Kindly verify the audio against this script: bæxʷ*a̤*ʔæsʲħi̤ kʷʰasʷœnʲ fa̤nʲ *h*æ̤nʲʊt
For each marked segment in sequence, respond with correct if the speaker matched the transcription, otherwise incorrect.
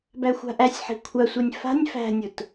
correct, incorrect: f

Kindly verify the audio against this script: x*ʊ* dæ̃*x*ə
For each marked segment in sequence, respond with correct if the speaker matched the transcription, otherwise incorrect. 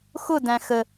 correct, correct

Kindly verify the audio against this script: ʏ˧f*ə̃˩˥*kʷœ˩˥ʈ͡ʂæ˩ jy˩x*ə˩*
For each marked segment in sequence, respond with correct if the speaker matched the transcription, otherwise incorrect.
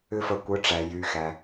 incorrect: ə˩˥, incorrect: æ˩

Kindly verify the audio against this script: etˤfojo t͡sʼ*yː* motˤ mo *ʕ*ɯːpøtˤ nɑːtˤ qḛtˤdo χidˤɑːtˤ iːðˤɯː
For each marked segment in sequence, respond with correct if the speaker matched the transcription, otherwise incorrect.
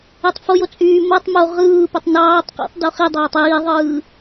correct, incorrect: ʁ

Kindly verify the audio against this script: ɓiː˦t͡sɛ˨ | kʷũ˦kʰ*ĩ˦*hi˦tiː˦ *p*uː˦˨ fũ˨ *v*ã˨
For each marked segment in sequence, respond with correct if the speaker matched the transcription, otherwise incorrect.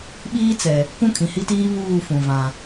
incorrect: ĩ˨, incorrect: β, correct

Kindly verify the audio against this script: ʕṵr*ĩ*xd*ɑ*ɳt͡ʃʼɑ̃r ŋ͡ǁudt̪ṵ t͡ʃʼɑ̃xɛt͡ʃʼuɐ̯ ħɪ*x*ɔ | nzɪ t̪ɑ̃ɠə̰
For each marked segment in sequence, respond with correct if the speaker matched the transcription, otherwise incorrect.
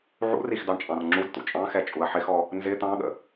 incorrect: i, correct, correct

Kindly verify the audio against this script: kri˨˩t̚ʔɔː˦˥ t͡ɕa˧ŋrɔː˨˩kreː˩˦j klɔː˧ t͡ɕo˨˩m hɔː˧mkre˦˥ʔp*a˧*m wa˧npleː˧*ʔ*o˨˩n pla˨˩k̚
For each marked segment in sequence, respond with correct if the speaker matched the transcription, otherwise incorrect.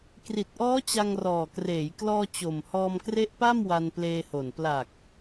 incorrect: a˥˩, incorrect: h

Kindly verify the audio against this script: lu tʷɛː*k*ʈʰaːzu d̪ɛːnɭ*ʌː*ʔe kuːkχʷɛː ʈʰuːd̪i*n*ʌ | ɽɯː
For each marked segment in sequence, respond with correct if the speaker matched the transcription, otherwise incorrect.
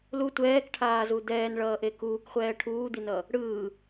correct, correct, correct

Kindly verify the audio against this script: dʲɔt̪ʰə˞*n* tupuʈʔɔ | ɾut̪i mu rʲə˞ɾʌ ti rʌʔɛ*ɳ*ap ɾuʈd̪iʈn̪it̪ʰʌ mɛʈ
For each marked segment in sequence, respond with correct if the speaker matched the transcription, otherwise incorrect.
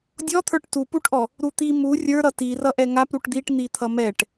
incorrect: ʈ, incorrect: ŋ

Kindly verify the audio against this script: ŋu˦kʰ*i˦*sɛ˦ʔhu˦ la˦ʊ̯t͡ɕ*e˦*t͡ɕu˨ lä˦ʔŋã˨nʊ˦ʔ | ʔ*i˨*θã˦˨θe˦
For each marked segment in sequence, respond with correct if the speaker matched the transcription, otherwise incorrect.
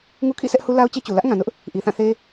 incorrect: ḭ˦˨, correct, correct

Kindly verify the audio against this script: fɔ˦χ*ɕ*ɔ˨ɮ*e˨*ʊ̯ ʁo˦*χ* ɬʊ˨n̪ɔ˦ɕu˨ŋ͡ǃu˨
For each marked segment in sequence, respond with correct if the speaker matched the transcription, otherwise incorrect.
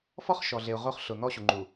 incorrect: ʃ, correct, correct

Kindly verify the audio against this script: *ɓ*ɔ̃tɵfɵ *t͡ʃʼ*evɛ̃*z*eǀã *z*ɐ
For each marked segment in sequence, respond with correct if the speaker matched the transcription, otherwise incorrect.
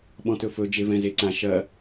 correct, incorrect: d͡ʒ, correct, incorrect: ʃ

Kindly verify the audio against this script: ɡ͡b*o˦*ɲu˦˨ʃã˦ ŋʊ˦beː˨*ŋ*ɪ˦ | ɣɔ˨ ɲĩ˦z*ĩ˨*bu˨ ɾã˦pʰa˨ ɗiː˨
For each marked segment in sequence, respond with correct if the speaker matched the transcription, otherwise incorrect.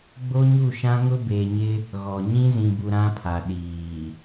correct, incorrect: ɲ, correct

